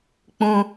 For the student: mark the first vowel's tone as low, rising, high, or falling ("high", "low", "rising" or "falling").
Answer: high